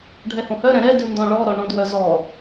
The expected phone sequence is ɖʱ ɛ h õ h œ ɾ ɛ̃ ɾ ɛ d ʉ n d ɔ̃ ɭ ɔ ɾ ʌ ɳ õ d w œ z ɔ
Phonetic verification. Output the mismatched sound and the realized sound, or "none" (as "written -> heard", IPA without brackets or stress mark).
ʌ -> ɔ